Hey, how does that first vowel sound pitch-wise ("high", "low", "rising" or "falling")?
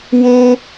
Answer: high